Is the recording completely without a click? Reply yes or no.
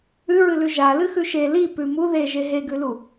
yes